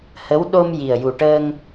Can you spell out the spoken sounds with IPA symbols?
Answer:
hə˧˥w ɗo˧m ji˨˩ə̯ju˨˩ʈəː˧ŋ

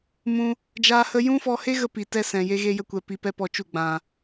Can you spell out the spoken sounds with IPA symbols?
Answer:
mũ˦ | d͡ʒaː˦hə˦ jũ˦fɔ˧he˦ɣə˧ pi˨tɛ˦ sɛ̃˨ je˦ɣe˦jə˦ kʷɛ˧pi˧pɛ˦ pɔ˧t͡ʃu˦˨ ɡ͡bã˨

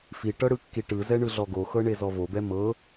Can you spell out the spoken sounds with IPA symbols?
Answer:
fiʈɤ ɽɯkːiʈɯzɛ ɳɯɮɔɡoxɤ ɳezɔvobɛ mɤ

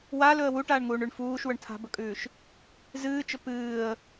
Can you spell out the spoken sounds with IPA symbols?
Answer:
walɵə̯ wuʈaːɳŋuːɳʉɳ fuːʃwɵɳ tʰa̤bɵkʼʉːʃ | zɨːt͡ʃɵ pɨːə̯

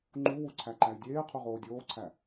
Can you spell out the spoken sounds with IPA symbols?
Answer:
ŋ͡ǃuwu ǀʰæǃæy̯dʲeːqʰu ʁoːdʲoːǀʰæ

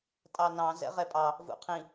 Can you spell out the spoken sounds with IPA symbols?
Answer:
tʼɑnɑ̃ zɛ̰ʁɛpʼɑ | vṵqʰĩ

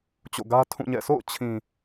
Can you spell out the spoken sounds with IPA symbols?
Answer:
t͡ɕo̰˦˨ ɡä˦tʰũ˦˨ɲɛ̰˦˨ sʰo̰˦˨ʊ̯t͡ɕʰĩ˨

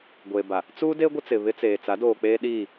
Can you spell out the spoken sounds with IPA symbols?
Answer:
ɡʷeː˨ba˨ | t͡suː˦de˦ ɡʷɪ˦t͡sɪ˨βɪ˦t͡seː˨ t͡sa˨˦doː˨ k͡peː˦ɗiː˦˨

